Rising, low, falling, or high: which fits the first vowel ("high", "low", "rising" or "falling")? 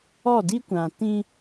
falling